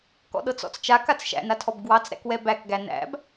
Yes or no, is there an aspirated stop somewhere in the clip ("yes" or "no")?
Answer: yes